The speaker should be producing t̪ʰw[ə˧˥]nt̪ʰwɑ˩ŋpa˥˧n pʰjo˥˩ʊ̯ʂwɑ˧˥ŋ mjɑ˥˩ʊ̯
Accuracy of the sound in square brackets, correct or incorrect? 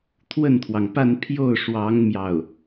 incorrect